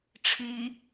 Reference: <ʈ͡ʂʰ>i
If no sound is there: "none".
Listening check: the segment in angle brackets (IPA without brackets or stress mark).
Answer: ʈ͡ʂʰ